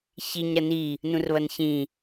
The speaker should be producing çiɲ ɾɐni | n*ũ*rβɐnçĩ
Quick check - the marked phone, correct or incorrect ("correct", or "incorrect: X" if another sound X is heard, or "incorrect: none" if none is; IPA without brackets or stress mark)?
correct